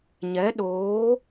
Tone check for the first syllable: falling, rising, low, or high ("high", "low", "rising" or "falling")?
rising